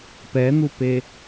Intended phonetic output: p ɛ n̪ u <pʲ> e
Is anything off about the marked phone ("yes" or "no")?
yes